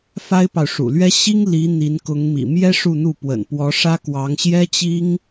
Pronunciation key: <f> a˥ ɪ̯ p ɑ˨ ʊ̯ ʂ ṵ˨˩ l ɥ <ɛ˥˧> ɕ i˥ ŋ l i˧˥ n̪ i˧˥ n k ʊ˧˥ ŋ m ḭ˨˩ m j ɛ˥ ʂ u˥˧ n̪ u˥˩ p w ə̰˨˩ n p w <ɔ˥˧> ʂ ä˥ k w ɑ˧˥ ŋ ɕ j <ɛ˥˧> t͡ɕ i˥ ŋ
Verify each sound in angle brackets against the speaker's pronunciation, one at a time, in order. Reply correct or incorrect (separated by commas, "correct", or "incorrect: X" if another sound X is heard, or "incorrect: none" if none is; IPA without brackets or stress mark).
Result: correct, incorrect: ɛ˥, incorrect: ɔ˧˥, incorrect: ɛ˥